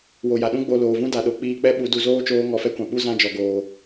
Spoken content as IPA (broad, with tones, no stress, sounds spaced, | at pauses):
w o˨ j a˨ ɗ ũ˦ ɡ͡b o˧ l oː˨ v ũ˦ d a˨ ɗ o˨ k͡p iː˧ k͡p ɛ˦ ɓ u˨˦ d u˨ z oː˦ t͡ʃ oː˧ ŋ ɔ˧ f ɛ˦ kʷ ã˨ ɓ u˦ z ã˦ d͡ʒ ɔ˨ ɡ oː˨